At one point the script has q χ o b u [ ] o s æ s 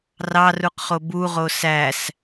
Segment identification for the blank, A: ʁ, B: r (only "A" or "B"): A